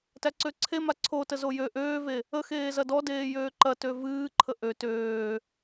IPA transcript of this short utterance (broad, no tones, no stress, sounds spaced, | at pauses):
t æ ǀ ø ǀʰ e m a ǀʰ o t ə z o j ø ʔ øː v e | ə x eː z ɐ d ɔ d eː j øː ǃ ɐ t ø v ɨː ǃʰ ə ʔ ø t øː